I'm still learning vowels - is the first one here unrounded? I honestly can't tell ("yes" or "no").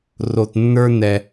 no